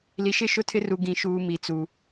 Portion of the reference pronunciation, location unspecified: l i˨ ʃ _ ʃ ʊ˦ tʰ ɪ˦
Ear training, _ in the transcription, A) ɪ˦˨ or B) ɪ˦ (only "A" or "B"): A